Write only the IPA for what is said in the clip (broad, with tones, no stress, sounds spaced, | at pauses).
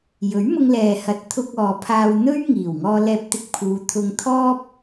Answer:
j ɵ˨˥ ɥ m ʊ˧ ŋ l ɛː˨ h ɐ˨ t̚ t̪ʰ ʊ˧ k̚ ɔː˨ pʰ aː˧ w n̪ ɵ˥ ɥ ŋ iː˨˩ w ŋ ɔː˧ l ɛː˧ p̚ t̪ ɪ˧ k̚ pʰ uː˨˧ t̪ʰ ʊ˧ ŋ t̪ʰ ɔː˥ p̚